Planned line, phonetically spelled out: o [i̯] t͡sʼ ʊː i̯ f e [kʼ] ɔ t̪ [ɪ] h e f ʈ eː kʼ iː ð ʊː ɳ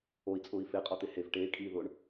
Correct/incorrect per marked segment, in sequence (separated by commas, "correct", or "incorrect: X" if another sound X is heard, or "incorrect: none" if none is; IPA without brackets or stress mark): correct, incorrect: qʼ, correct